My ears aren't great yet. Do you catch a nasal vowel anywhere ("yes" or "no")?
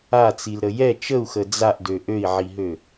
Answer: no